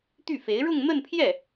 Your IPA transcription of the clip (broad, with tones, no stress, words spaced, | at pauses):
t̪y˥˩fe˧˥ɪ̯ ɻʊ˥˧ŋn̪ə˥˧npʰjɛ˥˩